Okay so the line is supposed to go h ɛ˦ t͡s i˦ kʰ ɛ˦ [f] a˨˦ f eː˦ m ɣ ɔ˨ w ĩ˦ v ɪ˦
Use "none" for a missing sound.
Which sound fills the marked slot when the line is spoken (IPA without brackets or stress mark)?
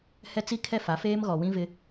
f